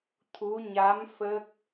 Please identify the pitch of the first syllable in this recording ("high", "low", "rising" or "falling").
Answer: rising